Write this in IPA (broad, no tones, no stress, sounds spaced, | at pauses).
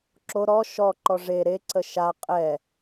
ǁ o ɾ ɔ ʃ ɔ ǃ ɔ ʐ e ɾ e ǀ ə ʃ a qʼ ɛ